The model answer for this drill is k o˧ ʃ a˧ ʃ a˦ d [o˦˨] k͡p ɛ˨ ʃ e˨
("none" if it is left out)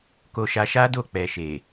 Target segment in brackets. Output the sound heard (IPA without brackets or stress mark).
o˦˨